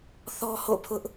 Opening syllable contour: high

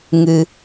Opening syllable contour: high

